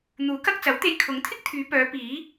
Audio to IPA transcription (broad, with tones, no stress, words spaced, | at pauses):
n̪uː˨˥kɐ˧k̚ t͡sɐ˨˥wt̪e˧j kʰʊ˨˥ŋt̪ʰɪ˥k̚t̪ʰyː˨˧pœː˨˧ piː˨˥